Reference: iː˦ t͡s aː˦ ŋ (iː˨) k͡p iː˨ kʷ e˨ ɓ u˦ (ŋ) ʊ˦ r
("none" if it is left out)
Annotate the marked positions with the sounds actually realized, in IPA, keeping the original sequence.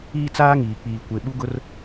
iː˨, ɡ

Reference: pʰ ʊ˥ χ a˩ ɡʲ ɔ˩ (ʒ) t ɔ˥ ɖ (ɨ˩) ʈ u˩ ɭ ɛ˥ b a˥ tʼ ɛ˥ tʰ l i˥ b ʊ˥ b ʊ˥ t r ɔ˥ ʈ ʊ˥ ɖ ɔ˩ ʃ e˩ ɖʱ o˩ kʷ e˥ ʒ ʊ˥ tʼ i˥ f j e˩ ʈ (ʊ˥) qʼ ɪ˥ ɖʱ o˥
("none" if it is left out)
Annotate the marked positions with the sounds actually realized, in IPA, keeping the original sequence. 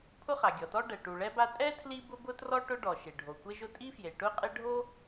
none, ɛ˩, ʊ˥

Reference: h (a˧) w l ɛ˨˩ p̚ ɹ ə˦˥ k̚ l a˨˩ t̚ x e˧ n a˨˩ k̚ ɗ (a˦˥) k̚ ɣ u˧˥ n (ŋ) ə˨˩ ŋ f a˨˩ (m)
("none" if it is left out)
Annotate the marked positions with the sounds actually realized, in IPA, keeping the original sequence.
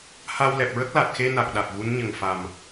a˧, a˨˩, ɲ, m

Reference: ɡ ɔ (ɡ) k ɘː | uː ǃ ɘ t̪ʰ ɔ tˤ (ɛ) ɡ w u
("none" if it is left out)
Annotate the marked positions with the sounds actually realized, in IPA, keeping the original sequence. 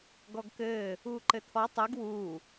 ɡ, ɨ

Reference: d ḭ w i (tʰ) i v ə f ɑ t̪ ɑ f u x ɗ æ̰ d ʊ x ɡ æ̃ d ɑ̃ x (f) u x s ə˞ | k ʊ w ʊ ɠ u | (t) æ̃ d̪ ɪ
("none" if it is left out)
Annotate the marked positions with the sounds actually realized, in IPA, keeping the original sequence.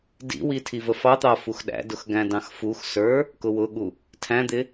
tʰ, f, tʰ

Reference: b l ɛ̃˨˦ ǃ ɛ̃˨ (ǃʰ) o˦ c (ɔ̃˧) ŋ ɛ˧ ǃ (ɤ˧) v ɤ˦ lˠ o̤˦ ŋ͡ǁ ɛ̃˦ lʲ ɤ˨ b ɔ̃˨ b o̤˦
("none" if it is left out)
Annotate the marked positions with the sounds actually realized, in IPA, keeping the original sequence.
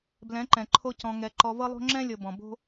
ǃʰ, ɔ̃˧, ɔ˧

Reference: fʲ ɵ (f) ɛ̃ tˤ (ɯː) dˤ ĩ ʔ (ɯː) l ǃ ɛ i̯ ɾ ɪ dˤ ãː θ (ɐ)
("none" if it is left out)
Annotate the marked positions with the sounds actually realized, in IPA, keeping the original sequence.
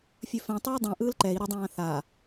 f, ɯː, ɯː, a

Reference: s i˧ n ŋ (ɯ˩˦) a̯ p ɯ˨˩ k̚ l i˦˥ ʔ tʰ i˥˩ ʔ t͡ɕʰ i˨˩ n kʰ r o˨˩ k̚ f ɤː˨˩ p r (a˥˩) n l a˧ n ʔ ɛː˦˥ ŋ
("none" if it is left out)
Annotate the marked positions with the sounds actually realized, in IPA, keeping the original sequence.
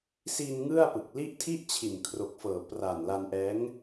ɯ˥˩, a˨˩

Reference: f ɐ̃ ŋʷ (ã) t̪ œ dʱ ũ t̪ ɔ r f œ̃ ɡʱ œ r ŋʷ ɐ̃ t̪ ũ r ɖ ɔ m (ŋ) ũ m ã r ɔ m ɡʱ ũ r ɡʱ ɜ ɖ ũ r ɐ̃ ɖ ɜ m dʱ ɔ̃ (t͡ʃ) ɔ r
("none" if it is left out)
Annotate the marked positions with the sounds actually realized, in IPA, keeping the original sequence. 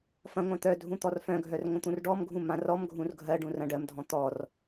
ã, ɡʱ, t̪

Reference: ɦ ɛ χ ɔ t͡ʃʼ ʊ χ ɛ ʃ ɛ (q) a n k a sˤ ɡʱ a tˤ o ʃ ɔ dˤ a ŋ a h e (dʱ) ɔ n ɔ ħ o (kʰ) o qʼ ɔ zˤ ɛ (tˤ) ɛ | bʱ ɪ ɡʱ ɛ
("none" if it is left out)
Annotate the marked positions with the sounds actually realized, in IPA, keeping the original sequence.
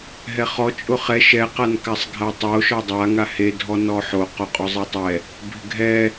q, dʱ, q, tˤ

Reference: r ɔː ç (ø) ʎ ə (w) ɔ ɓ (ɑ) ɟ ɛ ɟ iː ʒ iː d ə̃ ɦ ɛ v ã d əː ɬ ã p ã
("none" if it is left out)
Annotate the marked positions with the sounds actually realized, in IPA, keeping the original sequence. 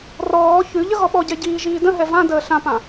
ʉ, ɣ, ɔ

